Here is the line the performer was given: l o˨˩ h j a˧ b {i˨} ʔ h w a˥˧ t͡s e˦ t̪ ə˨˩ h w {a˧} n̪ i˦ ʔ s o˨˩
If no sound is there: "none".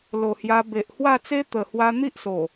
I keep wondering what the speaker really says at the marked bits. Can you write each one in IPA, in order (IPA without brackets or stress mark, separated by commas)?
e˨, a˧